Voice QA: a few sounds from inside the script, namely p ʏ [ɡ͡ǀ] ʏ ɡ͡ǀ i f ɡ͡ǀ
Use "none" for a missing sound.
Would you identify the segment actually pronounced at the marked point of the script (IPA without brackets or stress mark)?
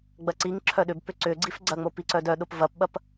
ǀ